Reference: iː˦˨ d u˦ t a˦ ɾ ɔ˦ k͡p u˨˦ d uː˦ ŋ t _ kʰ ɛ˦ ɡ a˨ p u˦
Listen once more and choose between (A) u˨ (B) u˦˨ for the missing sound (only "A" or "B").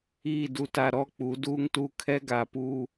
B